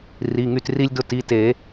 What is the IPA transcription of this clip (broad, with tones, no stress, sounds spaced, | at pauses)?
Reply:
r i˩˧˩ ŋ y˥˨ t r i˦ lʲ d ʊ˦ t i˩˧˩ t e˨˩˦